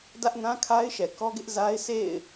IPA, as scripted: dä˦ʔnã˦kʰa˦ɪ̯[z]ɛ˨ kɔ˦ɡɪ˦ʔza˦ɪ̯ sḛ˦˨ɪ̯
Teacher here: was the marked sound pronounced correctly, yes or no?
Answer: no